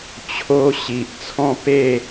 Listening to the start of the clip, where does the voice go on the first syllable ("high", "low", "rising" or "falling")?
high